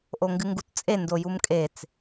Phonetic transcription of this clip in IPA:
ʔ o ŋ ɡ ɨ ŋ ɡ u t t͡sʼ e n d o j u m kʼ e t͡s

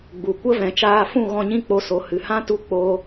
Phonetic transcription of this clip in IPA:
ɡ͡b u˨ kʷ ə˦ v ɛ̃˧ t͡ʃ aː˦ f ũ˦˨ ɣ ɔ̃˧ ɲ ĩ˦ k͡p o˧ s o˨˦ h ɨ˨ h ã˦ t u˦˨ k͡p oː˧

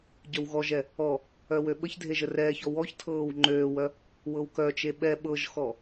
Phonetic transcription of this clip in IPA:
ɟ œ w ɣ ɔ ʒ ɛ | ɔ | œ w ø ɓ ə ç dʱ e ʒ ə r ɛː ç ɔ w ɔ ç tʰ ɤː w ŋ͡ǃ øː w œ | w ɤ w k œ t͡ʃ e ɓ ɛ ɓ ɤ ʒ x ɔ

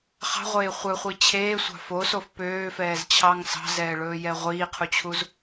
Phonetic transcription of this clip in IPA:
χ ɑ̤ ʁʷ eː χʷ œ χʷ i t͡ɕʰ eː sʷ ɑ̤ f o s o f p øː f ɛː z t͡ɕʰ ɑ ŋ s ɑ̤ z ɛː ɭ ɵː j ɛ ʁʷ iː qʰ u t͡ɕʰ u z

